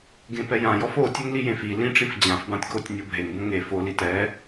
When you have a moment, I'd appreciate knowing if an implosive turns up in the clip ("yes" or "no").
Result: no